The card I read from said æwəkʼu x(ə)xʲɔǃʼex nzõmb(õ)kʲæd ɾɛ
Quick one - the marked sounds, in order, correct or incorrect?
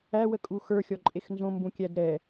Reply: incorrect: ə˞, incorrect: ũ

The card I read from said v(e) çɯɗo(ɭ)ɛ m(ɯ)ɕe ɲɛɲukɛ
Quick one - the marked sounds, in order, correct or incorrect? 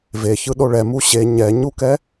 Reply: correct, correct, incorrect: u

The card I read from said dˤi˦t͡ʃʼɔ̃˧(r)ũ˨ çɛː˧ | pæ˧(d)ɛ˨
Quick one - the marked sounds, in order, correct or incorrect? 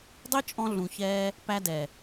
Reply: incorrect: ɮ, correct

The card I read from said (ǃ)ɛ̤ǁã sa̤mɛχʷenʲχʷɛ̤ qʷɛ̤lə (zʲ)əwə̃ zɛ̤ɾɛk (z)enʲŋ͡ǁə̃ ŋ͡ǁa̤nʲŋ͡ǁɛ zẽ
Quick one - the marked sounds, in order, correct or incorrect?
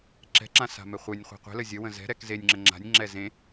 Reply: incorrect: ǁ, correct, correct

